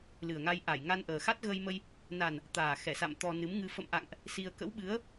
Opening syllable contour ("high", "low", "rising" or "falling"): low